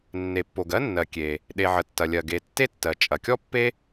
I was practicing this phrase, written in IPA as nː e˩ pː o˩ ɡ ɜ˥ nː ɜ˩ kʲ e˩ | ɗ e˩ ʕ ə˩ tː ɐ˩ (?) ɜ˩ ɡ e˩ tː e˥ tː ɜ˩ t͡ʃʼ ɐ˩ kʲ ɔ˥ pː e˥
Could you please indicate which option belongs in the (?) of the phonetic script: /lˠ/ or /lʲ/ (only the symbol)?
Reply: lʲ